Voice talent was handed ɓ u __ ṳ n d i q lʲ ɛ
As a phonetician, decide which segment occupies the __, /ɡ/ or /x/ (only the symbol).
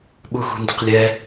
x